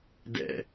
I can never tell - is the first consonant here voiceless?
no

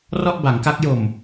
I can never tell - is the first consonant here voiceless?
no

